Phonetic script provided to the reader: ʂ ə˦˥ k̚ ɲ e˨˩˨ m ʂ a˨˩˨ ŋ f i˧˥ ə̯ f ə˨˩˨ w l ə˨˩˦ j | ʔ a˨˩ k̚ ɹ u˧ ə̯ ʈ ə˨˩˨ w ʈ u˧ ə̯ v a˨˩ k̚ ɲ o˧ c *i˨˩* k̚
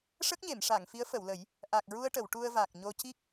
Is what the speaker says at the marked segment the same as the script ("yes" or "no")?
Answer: no